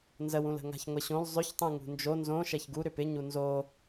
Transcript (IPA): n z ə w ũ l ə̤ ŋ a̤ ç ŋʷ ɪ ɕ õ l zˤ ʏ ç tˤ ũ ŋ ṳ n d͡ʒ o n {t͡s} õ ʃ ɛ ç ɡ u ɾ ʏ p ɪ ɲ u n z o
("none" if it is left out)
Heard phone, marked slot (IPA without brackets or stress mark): z